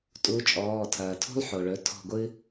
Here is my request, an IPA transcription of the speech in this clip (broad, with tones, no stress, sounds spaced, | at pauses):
tʼ u˨˥ t͡ʃʼ ɔː˩˧˩ tʰ ɐː˩ tʰ ṳ˥ lˠ ħ o˩ ɭ ɵ˩˧˩ tʰ ɔ̤˦˨ ɡʷ ɨ˥